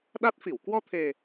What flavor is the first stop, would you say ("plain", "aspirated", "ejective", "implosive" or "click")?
implosive